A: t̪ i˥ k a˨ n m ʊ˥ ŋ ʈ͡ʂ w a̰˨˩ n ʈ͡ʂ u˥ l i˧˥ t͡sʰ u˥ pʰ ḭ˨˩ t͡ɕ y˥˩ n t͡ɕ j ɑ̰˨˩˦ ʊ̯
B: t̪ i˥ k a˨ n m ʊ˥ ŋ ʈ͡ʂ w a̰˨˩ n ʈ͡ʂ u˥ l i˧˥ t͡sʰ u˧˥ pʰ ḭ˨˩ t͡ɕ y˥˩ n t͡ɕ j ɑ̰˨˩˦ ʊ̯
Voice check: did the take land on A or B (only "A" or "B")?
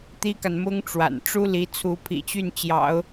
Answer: B